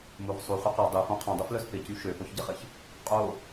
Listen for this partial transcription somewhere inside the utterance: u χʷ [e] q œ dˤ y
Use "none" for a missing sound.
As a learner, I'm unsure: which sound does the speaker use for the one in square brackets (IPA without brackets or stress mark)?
i